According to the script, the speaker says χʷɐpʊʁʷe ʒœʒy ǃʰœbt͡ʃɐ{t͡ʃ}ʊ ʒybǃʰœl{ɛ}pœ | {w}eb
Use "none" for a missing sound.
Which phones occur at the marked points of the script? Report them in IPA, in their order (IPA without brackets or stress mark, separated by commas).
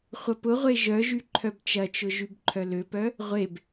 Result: t͡ʃ, ø, ʁʷ